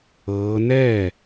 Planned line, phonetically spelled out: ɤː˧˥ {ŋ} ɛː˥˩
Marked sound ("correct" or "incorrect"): incorrect